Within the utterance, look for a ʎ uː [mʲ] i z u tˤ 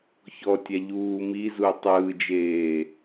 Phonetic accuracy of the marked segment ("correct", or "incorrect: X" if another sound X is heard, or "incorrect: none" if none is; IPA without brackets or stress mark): incorrect: m